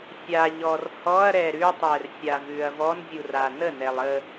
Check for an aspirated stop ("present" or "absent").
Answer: absent